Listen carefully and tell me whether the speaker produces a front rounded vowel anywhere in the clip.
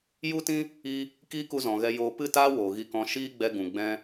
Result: no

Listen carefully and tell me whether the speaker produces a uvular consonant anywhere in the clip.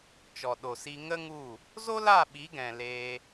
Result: no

